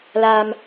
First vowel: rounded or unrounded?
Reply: unrounded